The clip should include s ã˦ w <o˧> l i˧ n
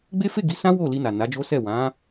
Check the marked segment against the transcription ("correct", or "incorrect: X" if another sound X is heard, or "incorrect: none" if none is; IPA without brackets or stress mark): incorrect: o˦˨